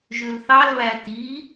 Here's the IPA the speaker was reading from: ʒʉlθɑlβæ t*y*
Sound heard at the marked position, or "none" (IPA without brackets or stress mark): i